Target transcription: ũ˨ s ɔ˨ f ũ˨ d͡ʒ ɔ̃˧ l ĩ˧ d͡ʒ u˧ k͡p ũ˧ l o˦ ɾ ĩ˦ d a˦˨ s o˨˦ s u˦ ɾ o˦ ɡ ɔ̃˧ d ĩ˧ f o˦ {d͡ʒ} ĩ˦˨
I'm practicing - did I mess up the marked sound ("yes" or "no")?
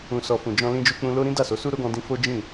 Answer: no